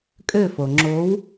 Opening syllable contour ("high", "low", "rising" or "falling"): falling